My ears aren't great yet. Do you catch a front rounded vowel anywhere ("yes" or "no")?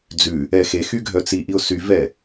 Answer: yes